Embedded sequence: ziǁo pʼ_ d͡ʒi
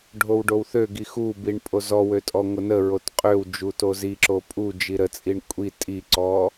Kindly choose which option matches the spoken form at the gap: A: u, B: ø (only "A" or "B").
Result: A